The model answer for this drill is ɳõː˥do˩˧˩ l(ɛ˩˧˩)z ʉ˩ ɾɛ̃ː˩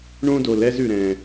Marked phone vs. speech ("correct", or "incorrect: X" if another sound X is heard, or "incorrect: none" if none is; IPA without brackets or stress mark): incorrect: ɛ˥